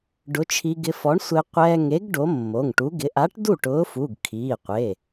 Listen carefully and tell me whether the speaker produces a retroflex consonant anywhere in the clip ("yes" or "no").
yes